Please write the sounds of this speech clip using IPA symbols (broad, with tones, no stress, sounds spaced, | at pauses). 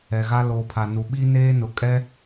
ɛ˨ ɣ a˦ l oː˨ pʰ a˨ n u˨ ɓ i˦ n eː˦ n ʊ˨ kʼ ɛ˦